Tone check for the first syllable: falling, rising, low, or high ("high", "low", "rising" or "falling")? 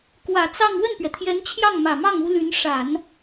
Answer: low